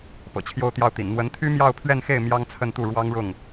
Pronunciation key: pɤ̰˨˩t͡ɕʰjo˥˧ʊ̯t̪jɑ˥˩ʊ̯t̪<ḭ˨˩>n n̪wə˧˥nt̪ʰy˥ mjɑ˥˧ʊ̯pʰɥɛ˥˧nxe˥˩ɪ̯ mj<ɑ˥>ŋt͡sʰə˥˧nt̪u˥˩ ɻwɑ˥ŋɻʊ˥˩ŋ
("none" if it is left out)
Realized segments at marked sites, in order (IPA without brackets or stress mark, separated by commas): ḭ˨˩, ɑ˥